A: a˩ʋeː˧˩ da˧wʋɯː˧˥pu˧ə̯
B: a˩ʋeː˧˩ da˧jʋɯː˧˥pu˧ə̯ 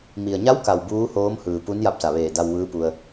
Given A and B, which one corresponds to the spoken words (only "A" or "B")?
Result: A